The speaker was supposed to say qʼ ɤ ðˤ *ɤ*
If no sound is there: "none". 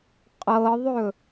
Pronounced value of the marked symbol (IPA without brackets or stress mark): ɵ